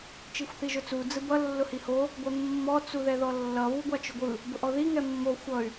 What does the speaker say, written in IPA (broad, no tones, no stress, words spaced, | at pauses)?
t͡ʃixʷθiʒʊt͡su d͡zɯbʌ lːʊhiho | ɡʷɛmːɔ t͡suðɛðɔlːʌ βuɡʷat͡ʃʊɡʷɯ | bʊʔɔði ŋɛmːo xʷʌy̯